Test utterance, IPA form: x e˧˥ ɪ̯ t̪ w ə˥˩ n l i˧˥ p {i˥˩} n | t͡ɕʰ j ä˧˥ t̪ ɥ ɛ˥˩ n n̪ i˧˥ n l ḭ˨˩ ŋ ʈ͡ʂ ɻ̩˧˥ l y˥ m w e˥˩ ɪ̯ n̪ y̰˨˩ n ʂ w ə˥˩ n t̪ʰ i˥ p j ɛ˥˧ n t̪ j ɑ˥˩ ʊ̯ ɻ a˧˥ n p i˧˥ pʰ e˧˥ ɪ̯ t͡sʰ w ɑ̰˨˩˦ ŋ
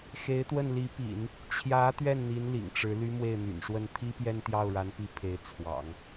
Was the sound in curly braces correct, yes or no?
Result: no